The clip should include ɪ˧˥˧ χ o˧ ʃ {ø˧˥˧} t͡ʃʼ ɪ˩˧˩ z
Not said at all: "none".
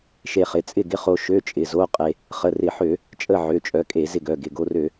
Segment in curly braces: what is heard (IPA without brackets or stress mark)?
ø˧˥˧